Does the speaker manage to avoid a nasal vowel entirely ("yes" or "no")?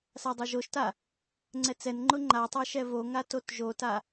yes